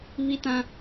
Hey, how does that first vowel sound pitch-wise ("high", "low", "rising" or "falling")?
high